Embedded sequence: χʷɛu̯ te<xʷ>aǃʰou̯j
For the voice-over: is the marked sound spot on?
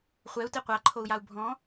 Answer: no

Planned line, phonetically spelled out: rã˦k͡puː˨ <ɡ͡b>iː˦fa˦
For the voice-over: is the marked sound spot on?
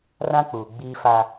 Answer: yes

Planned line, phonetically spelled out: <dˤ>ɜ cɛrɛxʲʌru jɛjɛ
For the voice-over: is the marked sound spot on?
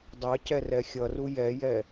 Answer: yes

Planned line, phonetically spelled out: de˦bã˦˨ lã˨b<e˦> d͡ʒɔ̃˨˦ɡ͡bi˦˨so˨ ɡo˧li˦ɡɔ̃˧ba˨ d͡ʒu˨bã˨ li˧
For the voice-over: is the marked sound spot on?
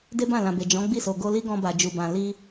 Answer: no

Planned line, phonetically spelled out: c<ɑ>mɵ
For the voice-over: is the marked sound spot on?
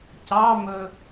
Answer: yes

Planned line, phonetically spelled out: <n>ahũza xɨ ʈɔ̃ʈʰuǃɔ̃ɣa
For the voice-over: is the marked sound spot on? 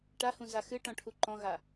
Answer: no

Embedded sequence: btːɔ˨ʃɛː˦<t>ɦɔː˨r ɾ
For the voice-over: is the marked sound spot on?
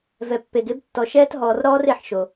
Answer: yes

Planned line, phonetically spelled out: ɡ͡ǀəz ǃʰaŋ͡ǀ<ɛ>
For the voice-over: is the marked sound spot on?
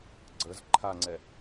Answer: yes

